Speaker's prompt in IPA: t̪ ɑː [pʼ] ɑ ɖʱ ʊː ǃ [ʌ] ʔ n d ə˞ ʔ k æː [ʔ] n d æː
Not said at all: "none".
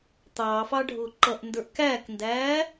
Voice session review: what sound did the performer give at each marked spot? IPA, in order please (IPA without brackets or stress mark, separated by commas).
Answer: f, ʌ, k